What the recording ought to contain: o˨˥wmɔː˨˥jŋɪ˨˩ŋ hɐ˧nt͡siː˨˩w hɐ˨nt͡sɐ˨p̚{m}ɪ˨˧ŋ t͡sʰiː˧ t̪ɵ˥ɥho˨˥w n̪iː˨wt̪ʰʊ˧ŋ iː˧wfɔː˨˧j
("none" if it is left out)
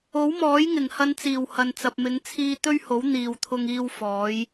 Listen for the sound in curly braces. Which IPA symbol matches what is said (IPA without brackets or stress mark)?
m